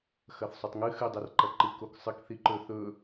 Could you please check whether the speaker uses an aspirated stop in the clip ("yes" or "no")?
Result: no